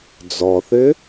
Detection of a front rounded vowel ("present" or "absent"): present